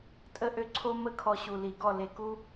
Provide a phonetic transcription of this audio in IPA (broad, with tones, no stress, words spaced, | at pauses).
tʼə˦ʔø˦ǀʰo˦ mə˦˨kʰɔ˧ɕu˨ li˨ɡɔ˦˨ le˧ku˦